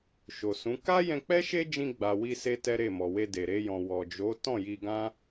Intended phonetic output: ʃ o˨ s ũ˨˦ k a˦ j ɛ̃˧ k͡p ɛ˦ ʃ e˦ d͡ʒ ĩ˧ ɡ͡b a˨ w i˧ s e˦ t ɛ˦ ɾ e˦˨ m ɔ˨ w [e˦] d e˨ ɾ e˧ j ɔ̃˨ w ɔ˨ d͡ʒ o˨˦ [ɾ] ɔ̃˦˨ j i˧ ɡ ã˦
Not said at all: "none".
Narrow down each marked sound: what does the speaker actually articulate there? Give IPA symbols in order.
e˧, t

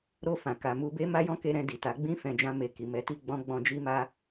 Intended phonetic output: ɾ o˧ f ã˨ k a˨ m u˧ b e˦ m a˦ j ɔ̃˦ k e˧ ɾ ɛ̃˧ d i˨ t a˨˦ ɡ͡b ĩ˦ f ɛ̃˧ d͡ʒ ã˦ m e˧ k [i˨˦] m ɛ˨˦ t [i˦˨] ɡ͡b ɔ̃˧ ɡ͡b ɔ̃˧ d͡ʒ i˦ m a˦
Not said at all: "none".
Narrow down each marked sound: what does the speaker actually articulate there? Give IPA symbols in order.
i˨, i˦˨

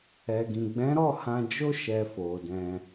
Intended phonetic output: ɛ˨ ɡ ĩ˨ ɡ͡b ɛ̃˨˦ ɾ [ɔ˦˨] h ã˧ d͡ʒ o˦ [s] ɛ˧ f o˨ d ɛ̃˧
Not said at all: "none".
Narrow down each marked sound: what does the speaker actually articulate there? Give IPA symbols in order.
ɔ˦˨, ʃ

